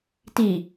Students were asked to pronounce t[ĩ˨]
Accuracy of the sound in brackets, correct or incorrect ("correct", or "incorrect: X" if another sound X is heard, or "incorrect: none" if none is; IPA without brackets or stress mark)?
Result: incorrect: i˨